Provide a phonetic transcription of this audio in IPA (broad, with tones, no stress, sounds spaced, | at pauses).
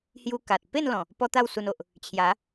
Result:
h j u˧ k a˨ t̚ p e˥˧ n l ɔ̃˨˩ | p ɔ˦ t̪ a˥˧ w s u˧ n o˨ ʔ | t͡ɕʰ j a˨˦